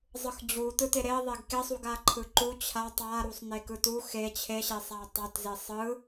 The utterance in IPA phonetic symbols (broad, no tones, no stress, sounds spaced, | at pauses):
zˤ ɯ x d͡ʑ u t ɯ t e ɾ e ðˤ e ɡ k e sˤ u ɡ a ǃʰ ɯ ǃ u t͡ɕʰ a tˤ a ɾ u sˤ n e k ɯ t u x e t͡ɕʰ e ɕ e sˤ a tˤ a t z e sˤ ɯ